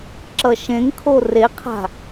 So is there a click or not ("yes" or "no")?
yes